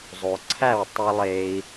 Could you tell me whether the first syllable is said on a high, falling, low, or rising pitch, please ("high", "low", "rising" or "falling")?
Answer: low